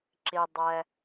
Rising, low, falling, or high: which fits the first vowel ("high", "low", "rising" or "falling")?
low